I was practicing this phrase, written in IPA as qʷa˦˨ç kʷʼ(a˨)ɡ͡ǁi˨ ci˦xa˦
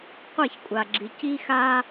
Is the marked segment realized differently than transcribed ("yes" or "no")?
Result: no